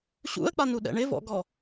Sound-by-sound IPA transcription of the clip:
ɕ ṵ ə̯ k͡p a n u ɗ ɛ̰ ɳ ɪ v ɔ̰ ɡ ɔ

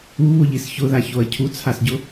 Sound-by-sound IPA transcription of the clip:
u β ʊ ʎ i s ç ʊ ð a ç o ɐ̯ cʰ u t͡sʰ a s ɟ ʊ

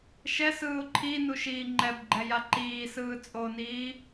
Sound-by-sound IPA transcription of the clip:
ʃ ɛ s ɯː ʊ̯ ǃʰ i n u ʃ iː ŋ͡ǃ ɛ b ɡ͡ǃ ɛ j a ǃ iː s ɯː t͡sʼ o n iː

